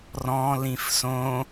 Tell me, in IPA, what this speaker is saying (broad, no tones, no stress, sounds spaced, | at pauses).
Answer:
r ɔ̃ l ĩ f s õ